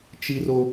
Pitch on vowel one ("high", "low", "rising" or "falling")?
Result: high